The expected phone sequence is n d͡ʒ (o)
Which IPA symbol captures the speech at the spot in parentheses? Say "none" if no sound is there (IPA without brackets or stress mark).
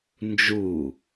u